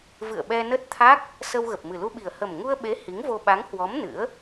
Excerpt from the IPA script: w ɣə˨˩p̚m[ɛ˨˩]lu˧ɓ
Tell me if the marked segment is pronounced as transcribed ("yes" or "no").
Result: no